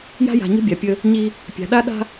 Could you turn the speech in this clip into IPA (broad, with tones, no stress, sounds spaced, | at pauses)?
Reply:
j a̤˦ j a̤˨ ɲ ə̤˦ bʲ a˨ pʲ ə˦ | ɲ i˦ | pʲ a̤˨ ɗ a˦ ɗ a̤˦